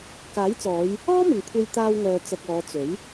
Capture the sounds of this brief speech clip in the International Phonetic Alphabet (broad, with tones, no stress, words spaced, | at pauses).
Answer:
kaː˨˥jt͡sɔː˨˧j | ɔː˥mɪ˨ŋ kʷʰe˧jt̪aː˧wŋœː˨ t͡sɐ˧k̚ɔː˨˧ t͡sɵ˨˥ɥ